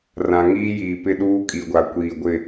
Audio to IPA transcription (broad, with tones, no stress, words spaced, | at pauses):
rã˨ŋiː˦jiː˨pɪ˦ ɗuː˦kʼi˨ɡʷa˨ kʷiː˨ ɡʷɪ˦˨